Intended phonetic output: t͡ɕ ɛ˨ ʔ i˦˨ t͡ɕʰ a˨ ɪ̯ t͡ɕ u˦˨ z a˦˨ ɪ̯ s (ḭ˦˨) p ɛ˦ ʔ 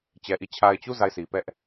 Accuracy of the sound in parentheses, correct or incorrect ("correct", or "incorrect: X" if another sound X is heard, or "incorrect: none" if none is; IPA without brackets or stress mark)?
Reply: incorrect: i˨